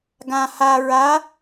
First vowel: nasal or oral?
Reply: nasal